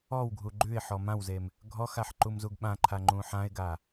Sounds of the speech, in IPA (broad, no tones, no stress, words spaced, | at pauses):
ɔwɡʱu ɡ͡ǃʉɪ̯ħɔ mãwzem | ɡʱɔxaħ ǃumzuɡɓãǃʰa ŋ͡ǃũħãɪ̯ɡa